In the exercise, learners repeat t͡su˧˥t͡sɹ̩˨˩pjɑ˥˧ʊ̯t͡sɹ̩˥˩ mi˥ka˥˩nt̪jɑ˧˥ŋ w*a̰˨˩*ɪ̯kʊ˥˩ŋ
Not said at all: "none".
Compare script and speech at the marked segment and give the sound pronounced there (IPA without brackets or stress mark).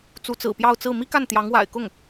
a̰˨˩